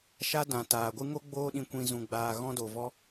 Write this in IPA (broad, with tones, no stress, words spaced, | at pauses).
ʃa˦dã˨taː˨ɡʷɨ˦ ŋo˦ɡ͡boː˧ɗĩ˨kʷĩ˨ zũ˨ɡ͡baː˨ ɣɔ̃˦do˨vɔ˦